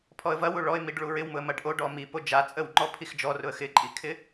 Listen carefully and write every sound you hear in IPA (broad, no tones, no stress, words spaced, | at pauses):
pʰɔə̯vɐwu ɭɔɪ̯miɖ ɭuɹɪwmʊə̯ mɐɖʔo ɖɔmi pod͡ʒa t͡sʼəwŋ͡ǃɔ pʰixd͡ʒɔrʊə̯ xɪǃʼikʰɪ